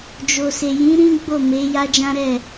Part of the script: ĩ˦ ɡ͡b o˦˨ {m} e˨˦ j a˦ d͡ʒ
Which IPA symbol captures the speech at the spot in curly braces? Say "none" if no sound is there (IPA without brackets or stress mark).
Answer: m